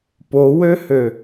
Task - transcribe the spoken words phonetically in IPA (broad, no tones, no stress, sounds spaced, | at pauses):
p o w ø h ø